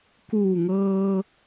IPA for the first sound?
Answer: k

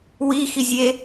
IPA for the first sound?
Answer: w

